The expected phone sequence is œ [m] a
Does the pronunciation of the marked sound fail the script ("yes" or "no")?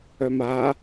no